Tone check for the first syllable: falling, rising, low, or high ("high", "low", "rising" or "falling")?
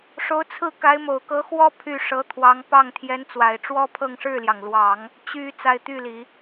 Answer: rising